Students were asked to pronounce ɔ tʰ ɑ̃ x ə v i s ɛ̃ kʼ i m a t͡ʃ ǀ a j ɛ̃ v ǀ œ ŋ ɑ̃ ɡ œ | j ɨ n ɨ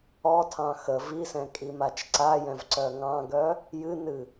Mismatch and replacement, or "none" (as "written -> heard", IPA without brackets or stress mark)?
none